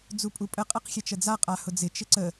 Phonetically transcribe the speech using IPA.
d͡z u pʼ u pʼ ə qʼ ɛ q xʲ ɛ t͡ʃ ə d͡z a qʼ a h ʊ d͡z ɪ t͡ʃ ɪ ǀ ə

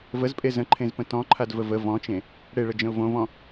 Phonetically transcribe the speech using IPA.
v ə z pʼ e z ə̃ ǃʰ ẽ z p ə̃ t ɔ̃ ǃʰ a d v ə v ə v ɔ̃ t͡ʃ ẽ | ɽ e ɭ ə d͡ʒ ə̃ ʊ̯ v õ v ɔ̃

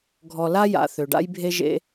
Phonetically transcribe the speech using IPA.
ɡʱ ɔ˨ l a˥ j a̰˨ θ ø˩ ɖ a̰˦ j bʱ e˦ ʒ ḛ˦

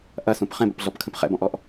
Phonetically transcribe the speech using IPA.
ʔ ɐ s ũ p χ ɛ̃ b ə̰ p ɮ ɔ p kʰ ə̃ p χ ɛ̰ b ɔ̃ ʔ ɔ ʔ

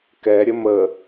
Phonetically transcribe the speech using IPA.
k ɛ ɾʲ ə m ə

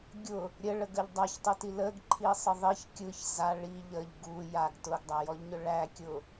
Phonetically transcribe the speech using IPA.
ɡʲ ʊ | ɾʲ ə ɭ ə ɡ ə ʎ dˤ a ç tˤ ɯ t i l ə ɡ ǃʰ i sˤ ɯ ðˤ i ç kʲ ɯ ç z a ɭ i ʎ ə ʎ ɡ u j a ɡ t ʊ ɡ dˤ æ j ɔ ʎ ɲ ʊ ɭ æ kʲ ʊ

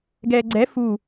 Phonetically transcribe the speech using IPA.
ɡ ɛː ɡ͡ǀ ɛ f u

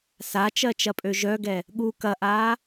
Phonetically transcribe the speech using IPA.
s a t͡ʃ ɜ t͡ʃ ɐ pʼ ø ʒ œ ɡ ɛ | ɠ u k ɐ ʔ aː

